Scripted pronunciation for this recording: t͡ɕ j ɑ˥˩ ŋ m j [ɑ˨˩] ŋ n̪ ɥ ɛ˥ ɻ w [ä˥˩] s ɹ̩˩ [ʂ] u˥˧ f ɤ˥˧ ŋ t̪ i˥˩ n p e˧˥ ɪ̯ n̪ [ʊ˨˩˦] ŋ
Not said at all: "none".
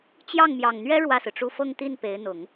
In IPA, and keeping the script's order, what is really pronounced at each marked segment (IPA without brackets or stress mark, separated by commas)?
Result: ɑ˨˩, ä˥˩, ʈ͡ʂ, ʊ˨˩˦